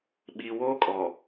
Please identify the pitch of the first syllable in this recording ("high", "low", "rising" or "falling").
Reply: low